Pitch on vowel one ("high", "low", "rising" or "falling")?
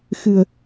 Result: low